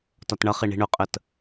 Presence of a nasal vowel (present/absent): absent